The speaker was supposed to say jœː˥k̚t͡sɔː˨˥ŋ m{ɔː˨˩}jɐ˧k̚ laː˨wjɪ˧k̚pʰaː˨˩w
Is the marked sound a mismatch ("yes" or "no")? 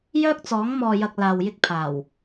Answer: yes